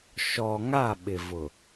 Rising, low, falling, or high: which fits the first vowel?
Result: low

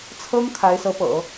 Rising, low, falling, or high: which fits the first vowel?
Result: high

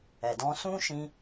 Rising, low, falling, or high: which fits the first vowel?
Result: low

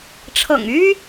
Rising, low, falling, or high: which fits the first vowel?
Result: low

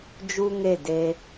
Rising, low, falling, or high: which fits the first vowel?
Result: high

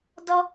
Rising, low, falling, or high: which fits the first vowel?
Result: high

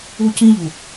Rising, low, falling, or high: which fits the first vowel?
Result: high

